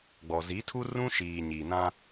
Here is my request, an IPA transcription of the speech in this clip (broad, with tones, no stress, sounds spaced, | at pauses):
ɡ͡b ɔ˨ z i˨˦ tʰ u˦ r ũ˦ ʃ iː˨ ɲ iː˨ n ã˦